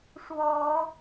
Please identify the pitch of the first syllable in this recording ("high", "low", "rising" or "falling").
rising